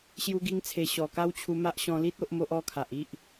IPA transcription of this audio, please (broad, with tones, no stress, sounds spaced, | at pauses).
ɕ j u˧ ɡ i˧ ŋ t͡sʰ e˨˩ ɕ ɔ˨˩ k a˦ w t͡ɕʰ u˧ m a˦ ʔ ɕ ɔ̃˧ l i˦ t̚ o˦ ʔ m o˦ ʔ ɔ˦ kʰ a˨ ʔ i˦ ʔ